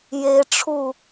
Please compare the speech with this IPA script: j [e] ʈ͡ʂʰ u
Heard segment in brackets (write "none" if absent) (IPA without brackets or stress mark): e